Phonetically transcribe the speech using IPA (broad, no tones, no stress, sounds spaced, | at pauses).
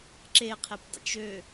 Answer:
ǁ e qʰ e p dˤ ə̰ t͡ʃ ø